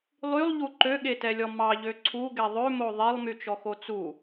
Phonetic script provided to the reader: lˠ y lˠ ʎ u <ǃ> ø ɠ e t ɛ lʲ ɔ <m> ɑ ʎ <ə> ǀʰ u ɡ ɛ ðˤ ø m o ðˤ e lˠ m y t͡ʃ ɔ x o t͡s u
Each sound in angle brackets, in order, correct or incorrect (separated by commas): correct, correct, incorrect